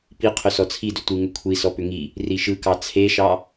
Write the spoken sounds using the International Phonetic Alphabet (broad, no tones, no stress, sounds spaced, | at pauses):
p i qʰ ʏ s ɔ t͡sʰ i d ʏ tʷ ɯ ŋ ʏ kʷʰ i s ɔ p ʏ ŋ i | r i ʃ ɯ k ɑ t͡sʰ e ʃ ɑ